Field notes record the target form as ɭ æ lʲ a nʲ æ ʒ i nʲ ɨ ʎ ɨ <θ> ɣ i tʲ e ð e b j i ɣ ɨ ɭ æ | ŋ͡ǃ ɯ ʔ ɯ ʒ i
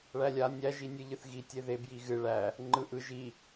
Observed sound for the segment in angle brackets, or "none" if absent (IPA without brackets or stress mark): θ